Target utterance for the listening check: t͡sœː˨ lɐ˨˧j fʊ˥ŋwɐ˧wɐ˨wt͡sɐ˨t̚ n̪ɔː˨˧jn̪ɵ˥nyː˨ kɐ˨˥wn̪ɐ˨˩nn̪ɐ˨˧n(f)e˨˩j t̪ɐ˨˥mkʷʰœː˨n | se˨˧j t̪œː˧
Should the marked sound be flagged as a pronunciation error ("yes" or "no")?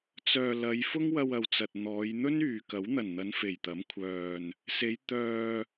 no